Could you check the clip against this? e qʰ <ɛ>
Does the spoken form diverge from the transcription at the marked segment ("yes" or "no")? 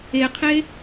yes